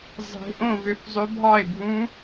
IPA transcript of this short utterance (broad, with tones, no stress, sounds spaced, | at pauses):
zˤ e̤˦˥ ʔ õ˥˧ v ø˥˧ f zˤ ø˦˥ bʱ ɑ˥˧ ɪ̯ bʱ ũ˦˥